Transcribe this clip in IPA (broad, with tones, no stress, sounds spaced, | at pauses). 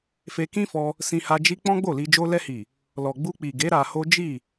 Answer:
f e˧ k ĩ˦ f ɔ˧ | s ĩ˧ h a˧ d͡ʒ i˧ k͡p ɔ̃˦ ɡ͡b o˦˨ l i˧ d͡ʒ o˦ l ɛ˧ h i˨ | l ɔ˨ ɡ͡b u˧ k͡p i˨ ɡ e˨˦ ɾ a˧ h o˦ d͡ʒ i˦˨